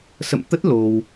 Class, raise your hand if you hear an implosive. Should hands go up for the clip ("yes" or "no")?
no